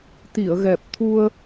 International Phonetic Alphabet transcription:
t̪i˨˩˨ə̯ɣɛ˨˩p̚t̪ʰu˧ə̯

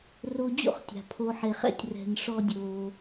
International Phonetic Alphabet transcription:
ro˧d͡ʑo̰˦χtʲa̤˨ pʰo˦ ħe˧χɛ̰˦tʲ rɛ̤˧nʂɔ˦dʲoː˧

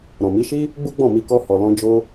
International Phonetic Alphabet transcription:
ɾɔ̃˨mi˨˦ʃi˦ | ɡ͡bu˦ɡ͡bɔ̃˦˨mi˧ kɔ˧ hɔ˨ lɔ̃˧ d͡ʒo˧

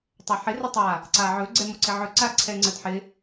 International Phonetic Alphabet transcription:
tˤɛħɪ rɪtˤa | ǀaʕɵ ɡ͡ǀɛmoǀɪʕɵ ǀaǀʰɛŋ͡ǀədħɪ

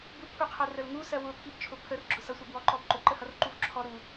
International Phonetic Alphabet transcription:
bukʰuqʰɜrəl ŋusɜ wʊpʰibt͡ʃʰʊ pʰərɡ͡ǁʊ sʌsʷɑbwɔǃɔb ǃʊǃəhʌrǃuv ǁʰɔ ɾu

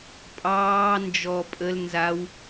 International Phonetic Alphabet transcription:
pʼɑː nd͡ʒɔ pʼəl nzaw

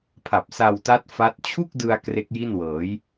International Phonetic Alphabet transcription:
pʰa˨˩p̚ sa˧wta˦˥t̚ fa˦˥t̚ t͡ɕʰu˥˩k̚dɯ˧a̯ kre˦˥k̚ji˥˩nwɤː˩˦j

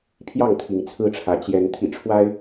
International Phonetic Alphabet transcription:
pʰjɑ˥˨ŋt̪ʰi˨˦ŋt͡sʰɹ̩˦ʈ͡ʂʰä˨˦ t͡ɕjɛ˨˦n t̪ʰḭ˨˩ʈ͡ʂʰwa˦ɪ̯

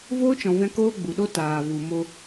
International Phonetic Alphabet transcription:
voː˦t͡ʃɔ̃˨vɛ̃˧ koː˦ɡ͡bu˨ɗo˦ taː˨vu˨mo˧

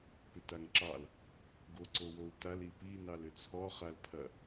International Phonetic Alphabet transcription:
pʏtaŋǁɑl | ɡoǀowou̯tal ipi nɑlʏt͡sʰɔ χalpʰɐ

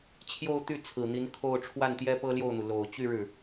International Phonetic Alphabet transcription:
t͡ɕʰjo˥˧ʊ̯t̪y˥˩ t͡sʰɹ̩˨˩n̪i˧˥n kʰo˥˧ʊ̯ ʈ͡ʂʰwa˥˩nt̪jɛ˥ pɤ˥ljo˥˩ʊ̯n̪u˩ lo˨˩ʊ̯ t͡ɕy˥˧ ɻɻ̩˥˩

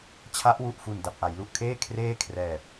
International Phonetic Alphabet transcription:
t͡ɕʰa˦˥ʔwu˨˩ʔfu˨˩n da˨˩p̚ʔa˩˦jlu˨˩ʔkʰeː˥˩ kʰreː˥˩kʰrɛː˨˩p̚

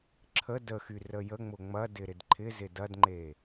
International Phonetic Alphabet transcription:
ǁʰə dəxy rəjəŋ͡mʊ ŋ͡mɐdɪ ɾɪdǃʰɪzɪ dɐdŋ͡ǃe

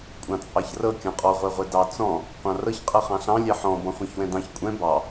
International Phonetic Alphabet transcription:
kʷʼɑ̃t͡sʼɑçrɤ kʲɔ̃qʼɔ ʁʷɛʁʷɛdɑ t͡sɔ̃ | qʷɑ̃rɤç qʼɤχɑ̃ɬɑ̃ lʲɛħɔ̃ bɔ̃χʷɛ̃çwɛ̃dɑ̃ç kʷʼɛ̃ bɑ

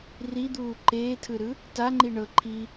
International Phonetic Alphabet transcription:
rid̪uː ǃeːtʰɯɾɯ | taŋ͡ǃi ɳɤ ǃʰi

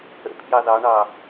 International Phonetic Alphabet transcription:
ə̰ pʰjɑðɑɳɑ

